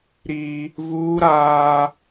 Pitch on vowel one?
high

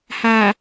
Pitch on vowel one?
low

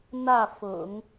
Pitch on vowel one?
falling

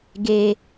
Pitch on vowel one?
low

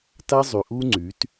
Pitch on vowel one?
high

